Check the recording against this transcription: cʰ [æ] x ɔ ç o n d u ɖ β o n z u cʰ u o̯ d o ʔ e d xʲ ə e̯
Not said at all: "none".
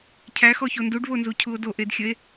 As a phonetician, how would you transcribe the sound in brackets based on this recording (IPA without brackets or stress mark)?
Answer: æ